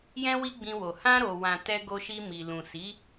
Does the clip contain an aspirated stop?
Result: no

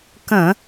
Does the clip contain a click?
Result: no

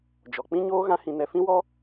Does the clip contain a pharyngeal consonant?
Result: no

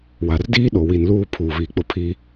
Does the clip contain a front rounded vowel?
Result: no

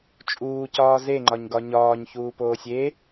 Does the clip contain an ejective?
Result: yes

